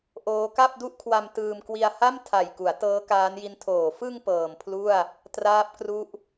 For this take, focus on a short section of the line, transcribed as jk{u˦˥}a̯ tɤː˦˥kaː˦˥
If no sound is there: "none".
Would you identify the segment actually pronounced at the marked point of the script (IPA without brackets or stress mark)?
u˩˦